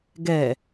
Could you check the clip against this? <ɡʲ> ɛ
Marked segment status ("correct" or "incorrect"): incorrect